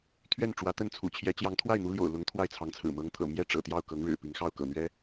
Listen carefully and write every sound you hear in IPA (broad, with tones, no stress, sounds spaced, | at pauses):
t̪ʰ ɥ ɛ˥˩ n ʈ͡ʂ w ä˧˥ t̪ ə˥˩ n t͡sʰ ṵ˨˩ t͡ɕʰ j ɛ˧˥ t͡ɕ j ɑ˧˥ ŋ t̪ʰ w a˥˩ ɪ̯ n̪ u˧˥ l j o̰˨˩ ʊ̯ l ʊ˧˥ ŋ t̪ʰ w a˥˩ ɪ̯ t͡sʰ ɑ˧˥ ŋ t͡sʰ ɹ̩˨˩ m ɤ˧˥ ŋ t̪ʰ ɤ̰˨˩ m j ɛ˥ ʈ͡ʂ ɤ̰˨˩ t̪ j ɑ˥˩ ʊ̯ k ɤ˧˥ ŋ ɻ ɻ̩˨˩ p i˧˥ ŋ x ɑ˥˩ ʊ̯ k ɤ̰˨˩ n̪ ɥ ɛ˧˥